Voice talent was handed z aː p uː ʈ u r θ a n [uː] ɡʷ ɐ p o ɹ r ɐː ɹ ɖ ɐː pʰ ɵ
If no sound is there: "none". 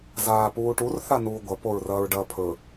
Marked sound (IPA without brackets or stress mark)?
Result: uː